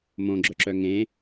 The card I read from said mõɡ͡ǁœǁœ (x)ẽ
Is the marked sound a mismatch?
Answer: yes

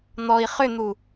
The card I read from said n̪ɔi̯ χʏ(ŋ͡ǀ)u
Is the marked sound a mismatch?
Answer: yes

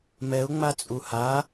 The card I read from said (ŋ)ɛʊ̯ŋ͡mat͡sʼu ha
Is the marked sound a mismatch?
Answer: yes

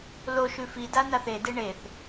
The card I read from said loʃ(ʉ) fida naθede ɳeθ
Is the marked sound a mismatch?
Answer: no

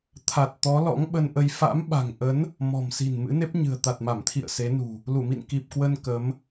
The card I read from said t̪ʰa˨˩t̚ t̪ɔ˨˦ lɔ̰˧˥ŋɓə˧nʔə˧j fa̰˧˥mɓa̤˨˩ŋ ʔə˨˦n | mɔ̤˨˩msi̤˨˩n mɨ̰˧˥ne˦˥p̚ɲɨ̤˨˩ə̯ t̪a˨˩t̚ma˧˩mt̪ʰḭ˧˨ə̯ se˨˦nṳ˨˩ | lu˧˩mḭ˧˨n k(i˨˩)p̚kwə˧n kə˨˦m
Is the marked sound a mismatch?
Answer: no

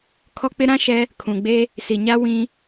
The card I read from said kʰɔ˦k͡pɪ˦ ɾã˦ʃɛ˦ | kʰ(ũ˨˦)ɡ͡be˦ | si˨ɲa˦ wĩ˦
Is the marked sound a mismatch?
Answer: yes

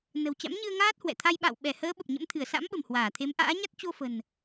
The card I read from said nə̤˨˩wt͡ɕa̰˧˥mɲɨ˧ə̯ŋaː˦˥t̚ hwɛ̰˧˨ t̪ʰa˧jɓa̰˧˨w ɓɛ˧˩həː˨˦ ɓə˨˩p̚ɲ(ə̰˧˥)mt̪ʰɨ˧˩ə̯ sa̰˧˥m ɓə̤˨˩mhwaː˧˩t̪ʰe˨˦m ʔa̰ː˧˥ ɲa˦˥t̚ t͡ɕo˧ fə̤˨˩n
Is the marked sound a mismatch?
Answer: no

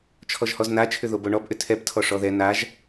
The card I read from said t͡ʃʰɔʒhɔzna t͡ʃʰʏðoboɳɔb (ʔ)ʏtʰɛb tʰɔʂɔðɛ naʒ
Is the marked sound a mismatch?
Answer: no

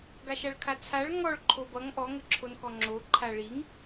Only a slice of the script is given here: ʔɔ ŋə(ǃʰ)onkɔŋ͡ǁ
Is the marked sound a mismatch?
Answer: yes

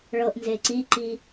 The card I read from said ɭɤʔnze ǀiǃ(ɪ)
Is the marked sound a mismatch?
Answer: yes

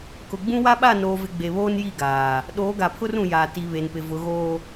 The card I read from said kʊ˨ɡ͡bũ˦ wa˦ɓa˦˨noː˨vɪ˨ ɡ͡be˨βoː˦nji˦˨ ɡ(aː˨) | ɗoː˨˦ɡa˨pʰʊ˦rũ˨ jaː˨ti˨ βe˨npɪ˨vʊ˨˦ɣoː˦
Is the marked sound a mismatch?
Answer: no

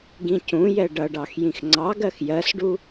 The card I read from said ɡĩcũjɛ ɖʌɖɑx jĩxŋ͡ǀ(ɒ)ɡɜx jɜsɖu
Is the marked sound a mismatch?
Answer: yes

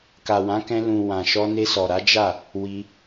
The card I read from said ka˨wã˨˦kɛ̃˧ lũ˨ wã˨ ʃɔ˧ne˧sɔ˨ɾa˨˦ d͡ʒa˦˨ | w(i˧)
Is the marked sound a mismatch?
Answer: no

